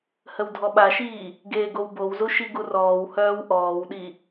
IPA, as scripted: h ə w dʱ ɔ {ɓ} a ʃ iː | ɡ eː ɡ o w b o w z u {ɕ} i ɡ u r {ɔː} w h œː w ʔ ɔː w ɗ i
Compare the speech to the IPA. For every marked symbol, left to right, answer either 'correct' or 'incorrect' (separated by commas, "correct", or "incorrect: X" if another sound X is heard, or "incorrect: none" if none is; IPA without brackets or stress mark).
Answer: correct, incorrect: ʃ, correct